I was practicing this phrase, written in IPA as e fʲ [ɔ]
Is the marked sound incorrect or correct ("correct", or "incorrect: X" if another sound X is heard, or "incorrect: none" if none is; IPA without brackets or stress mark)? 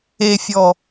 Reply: correct